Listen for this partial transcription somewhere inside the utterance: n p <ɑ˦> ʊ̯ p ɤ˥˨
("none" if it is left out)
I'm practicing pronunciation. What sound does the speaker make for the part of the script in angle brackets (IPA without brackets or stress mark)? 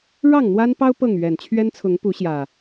ɑ˦